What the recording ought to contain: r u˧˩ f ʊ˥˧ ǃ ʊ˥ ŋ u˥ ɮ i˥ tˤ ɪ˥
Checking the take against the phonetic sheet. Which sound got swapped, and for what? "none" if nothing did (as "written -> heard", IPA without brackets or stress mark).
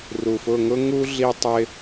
ǃ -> ŋ